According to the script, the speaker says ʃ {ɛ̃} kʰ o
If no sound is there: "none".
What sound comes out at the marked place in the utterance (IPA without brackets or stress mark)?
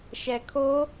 ɛ